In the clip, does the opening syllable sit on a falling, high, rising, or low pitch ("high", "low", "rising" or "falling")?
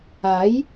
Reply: rising